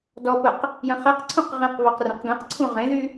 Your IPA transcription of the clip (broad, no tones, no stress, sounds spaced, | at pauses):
d ɔ p ə q | j ə̃ χ ɛ q ǀʰ ũ q ʁ ĩ q β ɔ q r ẽ q ɡ ẽ q ǀʰ ũ ʁ ẽ ð y